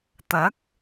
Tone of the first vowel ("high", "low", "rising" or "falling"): rising